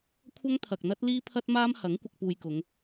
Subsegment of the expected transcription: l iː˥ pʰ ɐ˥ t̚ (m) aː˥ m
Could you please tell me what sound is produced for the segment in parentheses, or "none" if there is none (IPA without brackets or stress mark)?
m